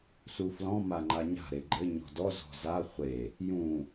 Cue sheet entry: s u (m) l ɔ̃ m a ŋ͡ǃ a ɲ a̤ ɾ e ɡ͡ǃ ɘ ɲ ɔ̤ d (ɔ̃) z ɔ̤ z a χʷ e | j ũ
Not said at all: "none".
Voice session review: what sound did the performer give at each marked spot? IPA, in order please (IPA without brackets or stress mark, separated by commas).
f, ɔ